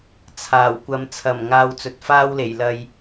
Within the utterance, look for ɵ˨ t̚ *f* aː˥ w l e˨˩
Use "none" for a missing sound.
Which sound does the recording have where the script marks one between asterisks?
f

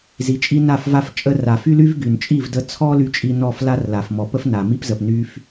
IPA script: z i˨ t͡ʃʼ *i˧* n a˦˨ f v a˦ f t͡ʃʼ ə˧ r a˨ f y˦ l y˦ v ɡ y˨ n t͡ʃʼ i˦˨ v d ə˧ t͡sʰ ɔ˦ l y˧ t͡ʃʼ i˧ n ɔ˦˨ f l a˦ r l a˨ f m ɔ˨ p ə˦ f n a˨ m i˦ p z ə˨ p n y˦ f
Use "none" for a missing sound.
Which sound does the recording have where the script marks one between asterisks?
i˦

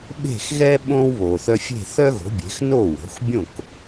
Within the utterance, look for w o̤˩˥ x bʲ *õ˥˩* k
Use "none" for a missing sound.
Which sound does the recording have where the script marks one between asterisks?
õ˥˩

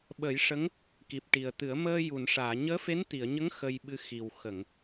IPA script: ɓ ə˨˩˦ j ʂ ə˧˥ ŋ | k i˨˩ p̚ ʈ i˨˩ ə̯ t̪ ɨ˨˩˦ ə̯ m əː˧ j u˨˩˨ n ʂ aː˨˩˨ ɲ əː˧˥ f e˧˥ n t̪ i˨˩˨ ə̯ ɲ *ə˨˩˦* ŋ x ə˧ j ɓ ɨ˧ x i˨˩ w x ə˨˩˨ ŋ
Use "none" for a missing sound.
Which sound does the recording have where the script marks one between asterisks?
ə˧˥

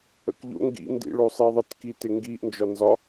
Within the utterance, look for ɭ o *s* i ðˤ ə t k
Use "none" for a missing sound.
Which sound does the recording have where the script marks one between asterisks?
sˤ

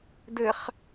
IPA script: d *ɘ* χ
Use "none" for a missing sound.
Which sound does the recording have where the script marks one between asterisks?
ɘ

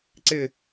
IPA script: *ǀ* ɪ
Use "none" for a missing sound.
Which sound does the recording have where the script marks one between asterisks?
ǀ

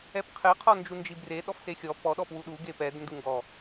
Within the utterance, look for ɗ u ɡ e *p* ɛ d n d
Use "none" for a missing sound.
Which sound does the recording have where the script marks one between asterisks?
p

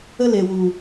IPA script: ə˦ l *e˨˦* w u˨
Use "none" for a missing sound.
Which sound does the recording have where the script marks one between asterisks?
e˨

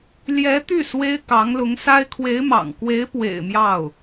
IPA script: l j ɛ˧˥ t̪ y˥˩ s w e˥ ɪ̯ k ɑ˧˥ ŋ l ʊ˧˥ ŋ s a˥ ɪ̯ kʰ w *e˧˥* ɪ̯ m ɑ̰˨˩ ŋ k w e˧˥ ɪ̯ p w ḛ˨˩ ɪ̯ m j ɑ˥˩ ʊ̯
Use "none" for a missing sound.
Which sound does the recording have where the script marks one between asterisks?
e˧˥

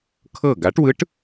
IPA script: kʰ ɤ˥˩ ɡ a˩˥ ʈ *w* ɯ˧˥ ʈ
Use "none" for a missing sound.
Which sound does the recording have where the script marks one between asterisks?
w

